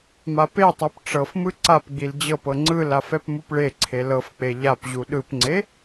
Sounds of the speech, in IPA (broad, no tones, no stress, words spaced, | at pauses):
mapetˤɤp ʈ͡ʂɤfmɯ ǀapɡ͡bil d͡ʑɤpɤ ŋ͡ǀɯlaf ɛpmupɭeǀʰe lɤfk͡pe ʎapʑu ɗɯpŋ͡ǀe